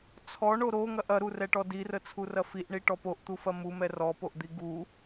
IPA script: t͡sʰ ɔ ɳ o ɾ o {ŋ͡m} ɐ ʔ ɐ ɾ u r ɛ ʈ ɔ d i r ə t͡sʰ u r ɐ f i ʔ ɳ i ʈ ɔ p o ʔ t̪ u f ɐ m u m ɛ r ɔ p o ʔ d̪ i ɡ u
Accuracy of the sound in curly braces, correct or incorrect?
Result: incorrect: ŋ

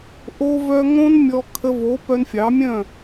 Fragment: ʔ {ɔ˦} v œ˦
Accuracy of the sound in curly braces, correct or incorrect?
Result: incorrect: o˦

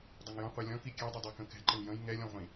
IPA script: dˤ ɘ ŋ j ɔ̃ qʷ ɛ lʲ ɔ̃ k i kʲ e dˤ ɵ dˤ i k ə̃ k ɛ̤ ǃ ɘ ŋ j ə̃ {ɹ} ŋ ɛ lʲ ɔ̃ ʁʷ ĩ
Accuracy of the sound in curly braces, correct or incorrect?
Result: incorrect: j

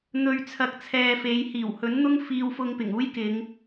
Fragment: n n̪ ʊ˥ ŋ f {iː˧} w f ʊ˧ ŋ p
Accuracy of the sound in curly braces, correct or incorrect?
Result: correct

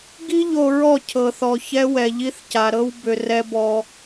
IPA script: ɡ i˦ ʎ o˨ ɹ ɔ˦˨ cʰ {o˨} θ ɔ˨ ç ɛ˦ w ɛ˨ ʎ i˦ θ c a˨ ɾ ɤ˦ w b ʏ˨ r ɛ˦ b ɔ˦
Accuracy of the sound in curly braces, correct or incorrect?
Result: incorrect: ɤ˨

